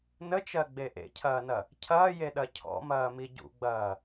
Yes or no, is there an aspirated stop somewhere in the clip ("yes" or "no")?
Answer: yes